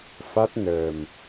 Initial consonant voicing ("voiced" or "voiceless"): voiceless